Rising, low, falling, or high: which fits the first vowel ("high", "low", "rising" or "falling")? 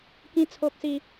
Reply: high